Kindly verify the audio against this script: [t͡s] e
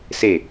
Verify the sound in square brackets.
incorrect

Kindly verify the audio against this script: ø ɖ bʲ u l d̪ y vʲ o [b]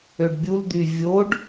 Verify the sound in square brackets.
incorrect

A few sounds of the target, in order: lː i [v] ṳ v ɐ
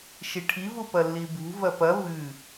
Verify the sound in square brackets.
incorrect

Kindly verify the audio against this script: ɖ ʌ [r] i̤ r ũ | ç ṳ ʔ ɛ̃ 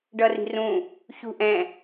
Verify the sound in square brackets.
correct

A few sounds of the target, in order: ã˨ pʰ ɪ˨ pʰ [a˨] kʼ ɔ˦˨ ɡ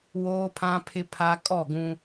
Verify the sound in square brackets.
correct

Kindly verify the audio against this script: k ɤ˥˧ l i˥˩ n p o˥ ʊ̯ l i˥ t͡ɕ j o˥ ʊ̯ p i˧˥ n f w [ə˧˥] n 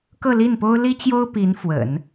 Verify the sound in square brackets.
incorrect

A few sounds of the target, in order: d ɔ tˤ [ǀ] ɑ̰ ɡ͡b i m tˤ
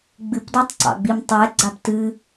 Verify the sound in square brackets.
correct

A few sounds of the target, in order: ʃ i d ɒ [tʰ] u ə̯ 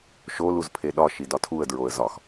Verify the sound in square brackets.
correct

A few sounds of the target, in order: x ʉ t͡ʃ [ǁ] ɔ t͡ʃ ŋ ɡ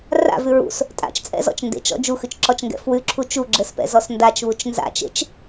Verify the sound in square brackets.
correct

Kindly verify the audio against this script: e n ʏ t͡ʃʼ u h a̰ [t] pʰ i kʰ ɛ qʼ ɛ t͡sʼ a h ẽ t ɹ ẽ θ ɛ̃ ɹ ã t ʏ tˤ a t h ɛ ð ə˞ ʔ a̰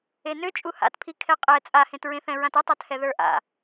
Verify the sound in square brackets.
correct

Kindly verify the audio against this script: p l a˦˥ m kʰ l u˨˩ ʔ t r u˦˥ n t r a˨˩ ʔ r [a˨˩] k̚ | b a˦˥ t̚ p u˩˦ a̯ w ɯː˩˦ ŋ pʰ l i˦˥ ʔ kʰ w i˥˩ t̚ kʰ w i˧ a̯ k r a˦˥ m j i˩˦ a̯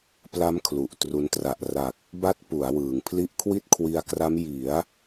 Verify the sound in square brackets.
correct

